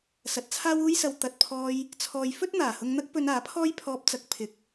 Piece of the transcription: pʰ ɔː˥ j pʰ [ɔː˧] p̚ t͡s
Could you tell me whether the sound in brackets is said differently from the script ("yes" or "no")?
no